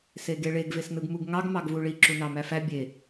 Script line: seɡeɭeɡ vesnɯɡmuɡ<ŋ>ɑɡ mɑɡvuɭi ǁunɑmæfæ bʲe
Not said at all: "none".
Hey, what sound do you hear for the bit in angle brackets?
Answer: ŋ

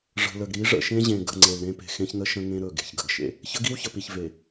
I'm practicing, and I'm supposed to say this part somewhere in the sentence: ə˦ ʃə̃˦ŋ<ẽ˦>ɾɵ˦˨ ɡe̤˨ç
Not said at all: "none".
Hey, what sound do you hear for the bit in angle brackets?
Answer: ẽ˦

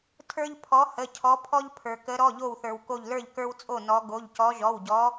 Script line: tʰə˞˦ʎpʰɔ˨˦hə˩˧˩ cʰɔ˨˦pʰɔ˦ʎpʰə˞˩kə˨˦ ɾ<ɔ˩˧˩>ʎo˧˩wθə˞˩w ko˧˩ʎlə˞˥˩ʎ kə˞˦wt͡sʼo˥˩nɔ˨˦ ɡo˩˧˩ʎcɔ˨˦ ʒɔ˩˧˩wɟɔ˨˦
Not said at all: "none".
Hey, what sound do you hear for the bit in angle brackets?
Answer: ɔ˩˧˩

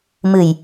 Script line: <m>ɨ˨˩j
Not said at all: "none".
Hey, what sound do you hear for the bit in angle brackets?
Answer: m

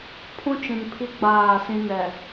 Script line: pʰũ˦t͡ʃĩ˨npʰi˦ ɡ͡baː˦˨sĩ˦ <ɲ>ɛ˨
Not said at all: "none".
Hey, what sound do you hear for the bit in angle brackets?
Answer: n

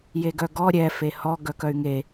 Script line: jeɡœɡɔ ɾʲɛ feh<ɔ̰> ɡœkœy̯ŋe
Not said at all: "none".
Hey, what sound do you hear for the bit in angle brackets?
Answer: ɔ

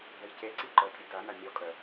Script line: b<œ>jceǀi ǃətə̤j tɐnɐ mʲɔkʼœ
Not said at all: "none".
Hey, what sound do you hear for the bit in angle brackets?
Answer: œ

